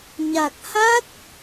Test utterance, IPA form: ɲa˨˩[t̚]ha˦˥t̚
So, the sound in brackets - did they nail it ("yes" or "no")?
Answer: no